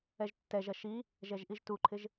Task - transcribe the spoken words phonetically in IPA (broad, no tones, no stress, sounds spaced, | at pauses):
ɛ ʒ tː ɛ ʒ ɐ ʃ i | ʒ ɛ ʒ ʔ i ʒ t u ǃʰ ɪ ʒ